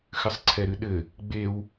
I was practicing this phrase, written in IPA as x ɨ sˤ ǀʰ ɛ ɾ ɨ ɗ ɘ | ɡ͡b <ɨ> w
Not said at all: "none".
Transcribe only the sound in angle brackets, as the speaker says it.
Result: e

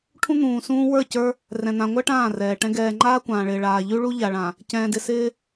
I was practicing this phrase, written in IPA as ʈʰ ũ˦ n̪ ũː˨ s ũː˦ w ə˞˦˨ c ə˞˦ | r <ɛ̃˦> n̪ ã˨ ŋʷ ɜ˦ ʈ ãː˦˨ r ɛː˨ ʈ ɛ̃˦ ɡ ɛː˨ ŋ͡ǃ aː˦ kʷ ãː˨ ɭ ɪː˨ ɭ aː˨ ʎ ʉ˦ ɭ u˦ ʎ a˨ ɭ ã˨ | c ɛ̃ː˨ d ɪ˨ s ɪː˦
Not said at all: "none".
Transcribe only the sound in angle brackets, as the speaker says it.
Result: ɛ̃˨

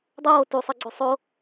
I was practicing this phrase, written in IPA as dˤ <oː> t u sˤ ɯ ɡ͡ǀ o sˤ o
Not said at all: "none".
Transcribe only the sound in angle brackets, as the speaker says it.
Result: oː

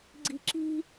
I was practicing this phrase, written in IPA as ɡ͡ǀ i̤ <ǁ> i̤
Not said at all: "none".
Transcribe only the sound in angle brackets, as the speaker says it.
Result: ǁ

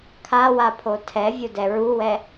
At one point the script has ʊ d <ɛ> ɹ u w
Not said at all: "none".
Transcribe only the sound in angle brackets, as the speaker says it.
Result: ɛ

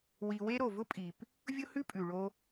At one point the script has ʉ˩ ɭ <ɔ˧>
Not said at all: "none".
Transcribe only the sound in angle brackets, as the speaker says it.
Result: o˧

